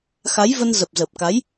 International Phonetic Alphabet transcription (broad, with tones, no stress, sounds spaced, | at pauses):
x a˨˦ j v ə˧ n z ə˨˩ p̚ z ə˨˩ p̚ k a˨˦ j